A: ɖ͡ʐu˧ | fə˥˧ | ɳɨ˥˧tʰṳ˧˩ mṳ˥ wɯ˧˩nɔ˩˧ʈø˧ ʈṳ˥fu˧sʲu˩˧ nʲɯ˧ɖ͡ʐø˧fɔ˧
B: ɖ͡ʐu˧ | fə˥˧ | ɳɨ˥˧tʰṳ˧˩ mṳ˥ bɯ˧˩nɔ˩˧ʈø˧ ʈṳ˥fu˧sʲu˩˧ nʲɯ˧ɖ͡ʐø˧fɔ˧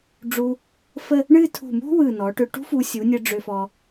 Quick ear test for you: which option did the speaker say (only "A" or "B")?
A